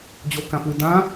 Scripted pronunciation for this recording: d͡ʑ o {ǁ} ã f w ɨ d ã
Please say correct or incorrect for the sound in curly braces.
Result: incorrect